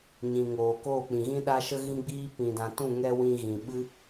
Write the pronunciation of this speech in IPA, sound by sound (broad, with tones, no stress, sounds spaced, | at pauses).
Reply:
ɲ ĩ˨ ŋ oː˨ k oː˦˨ k͡p ĩ˨ ɣ ĩ˦ ɗ a˦ ʃ ə˦ ɣ ĩ˦ ɡ͡b iː˦ p ĩ˧ d ã˧ t ũ˦˨ ŋ ɛ˧ w ĩ˧ ɣ ĩ˨ ɓ ɨ˦